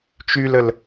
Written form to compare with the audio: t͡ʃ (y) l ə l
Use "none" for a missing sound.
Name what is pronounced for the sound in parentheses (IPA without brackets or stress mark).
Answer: y